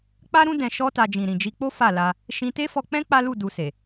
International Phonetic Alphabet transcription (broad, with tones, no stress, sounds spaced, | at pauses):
k͡p a˦ ɾ ũ˦ d ɛ̃˧ ʃ ɔ˦ t a˧ d͡ʒ ĩ˨ ɾ ĩ˨ d͡ʒ i˧ k͡p o˦ f a˦˨ l a˧ | ʃ ĩ˧ t e˦ f ɔ˧ k͡p ɛ̃˦ k͡p a˦ l u˦˨ d u˧ s e˨